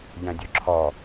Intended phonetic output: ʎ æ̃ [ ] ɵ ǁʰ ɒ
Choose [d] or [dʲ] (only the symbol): dʲ